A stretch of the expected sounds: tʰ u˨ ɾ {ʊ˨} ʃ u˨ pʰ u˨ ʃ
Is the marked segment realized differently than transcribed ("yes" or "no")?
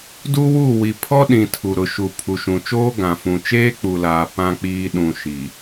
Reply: no